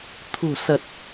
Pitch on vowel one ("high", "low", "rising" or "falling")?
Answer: low